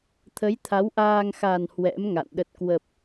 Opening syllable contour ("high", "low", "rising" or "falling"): rising